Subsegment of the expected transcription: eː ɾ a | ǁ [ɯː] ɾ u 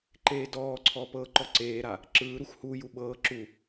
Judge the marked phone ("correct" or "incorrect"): correct